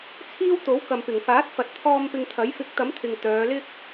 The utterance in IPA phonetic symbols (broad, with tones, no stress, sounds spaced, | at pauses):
t͡sʰ iː˥ w t̪ o˨˥ w k ɐ˨ m p ɪ˨˩ ŋ f aː˨˥ t̚ f ɐ˨ t̚ t̪ʰ ɔː˧ m p ɪ˧ ŋ t̪ʰ ɐ˨˥ j f ɪ˨˥ k̚ t̪ ɐ˨˥ m t̪ʰ ɪ˨ ŋ t̪ œː˨˧ l ɪ˥ k̚